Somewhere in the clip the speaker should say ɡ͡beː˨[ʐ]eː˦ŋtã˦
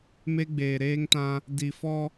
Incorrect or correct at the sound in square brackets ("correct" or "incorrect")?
incorrect